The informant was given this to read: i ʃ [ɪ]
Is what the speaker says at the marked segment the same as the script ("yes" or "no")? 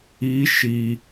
no